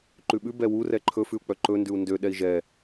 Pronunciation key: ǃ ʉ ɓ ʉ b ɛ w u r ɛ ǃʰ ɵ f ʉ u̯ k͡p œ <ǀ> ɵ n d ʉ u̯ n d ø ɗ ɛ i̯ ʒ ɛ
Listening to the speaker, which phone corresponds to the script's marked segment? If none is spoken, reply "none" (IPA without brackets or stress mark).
ǃ